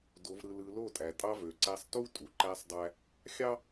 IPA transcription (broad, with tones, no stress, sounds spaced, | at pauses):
d o˨ v ɾ ɯ˨ l ɯ˨ l o˦˨ tʼ æ˨ tʼ ɑ˦ v ø˨ ǀ æ˦ sˤ t u˦ tʼ u˨ ǃ æ˦ sˤ dˤ æ˦ | xʲ ɑ˦